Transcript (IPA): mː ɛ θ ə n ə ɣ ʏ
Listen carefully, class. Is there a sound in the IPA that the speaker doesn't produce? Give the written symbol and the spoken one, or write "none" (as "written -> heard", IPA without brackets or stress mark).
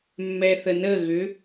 none